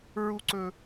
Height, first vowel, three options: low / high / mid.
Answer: high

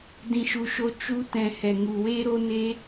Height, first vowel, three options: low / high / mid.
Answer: high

